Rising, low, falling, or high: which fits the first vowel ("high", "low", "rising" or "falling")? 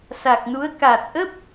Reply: low